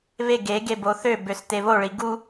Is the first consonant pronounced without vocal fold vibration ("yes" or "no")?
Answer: no